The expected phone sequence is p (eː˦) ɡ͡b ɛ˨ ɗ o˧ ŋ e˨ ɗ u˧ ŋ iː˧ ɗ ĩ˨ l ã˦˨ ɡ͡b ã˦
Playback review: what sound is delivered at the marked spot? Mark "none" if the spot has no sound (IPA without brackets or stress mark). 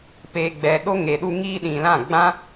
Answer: eː˨